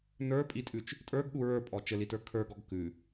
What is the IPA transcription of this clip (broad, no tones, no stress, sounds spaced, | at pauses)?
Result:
n ə˞ pʼ i tʼ ʉ t͡ʃ | tʼ ə˞ ɡ ɠ u ɹ ə˞ pʼ ɔ t͡ʃ ɘ l i t ə˞ kʰ ə˞ ɡ ɔ ɡ k ʉ